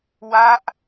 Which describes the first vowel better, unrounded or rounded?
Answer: unrounded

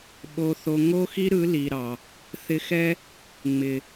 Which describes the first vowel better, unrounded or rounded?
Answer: rounded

